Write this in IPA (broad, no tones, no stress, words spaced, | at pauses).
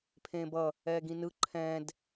pʰẽːbʌ | ɛːɡĩnɯ ǃʰɛ̃d